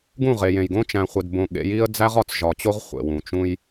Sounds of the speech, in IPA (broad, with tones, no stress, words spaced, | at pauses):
ɡũ˦˨ʁe˨jẽ˨jɡõ˦ t͡ʃæ̃˨χʷe˨dbõ˨ ɠḛ˨˦ji˦ə̯ d͡zæ˦ʁɒ˨t͡sʒɒ˨t͡ɕo˦ʁ χʷḛ˨wũ˨ t͡ʃũ˦j